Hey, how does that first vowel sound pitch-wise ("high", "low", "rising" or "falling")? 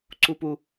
high